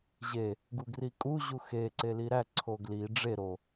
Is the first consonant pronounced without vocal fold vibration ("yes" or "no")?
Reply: no